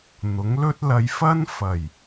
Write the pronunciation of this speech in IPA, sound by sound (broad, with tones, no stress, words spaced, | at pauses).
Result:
n̪ʊ˨˥ŋlɵ˥t̚ lɐ˨˧jfɐ˥n fɐ˨˩j